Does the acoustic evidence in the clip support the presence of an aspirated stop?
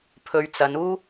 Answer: yes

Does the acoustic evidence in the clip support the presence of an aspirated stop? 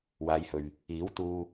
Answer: no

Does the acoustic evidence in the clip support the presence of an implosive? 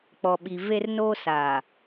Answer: yes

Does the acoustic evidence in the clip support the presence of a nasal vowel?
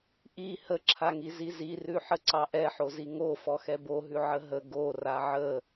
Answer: no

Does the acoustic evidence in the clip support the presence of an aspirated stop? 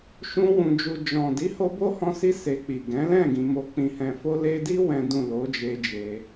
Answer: no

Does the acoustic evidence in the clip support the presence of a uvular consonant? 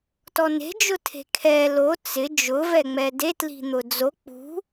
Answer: no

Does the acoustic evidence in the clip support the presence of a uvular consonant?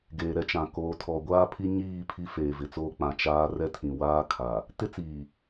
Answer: no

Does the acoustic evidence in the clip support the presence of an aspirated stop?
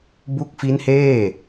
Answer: no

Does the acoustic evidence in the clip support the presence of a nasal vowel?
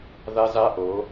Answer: no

